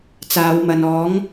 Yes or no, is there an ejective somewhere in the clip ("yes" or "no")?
no